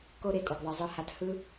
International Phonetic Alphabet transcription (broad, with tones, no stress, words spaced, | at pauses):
ko˦ ɾe˧kʼo˨ɡ ðˤi˨zˤɯ˧ha˧t hɯ˦